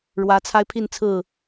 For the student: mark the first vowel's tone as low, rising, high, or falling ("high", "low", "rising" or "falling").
rising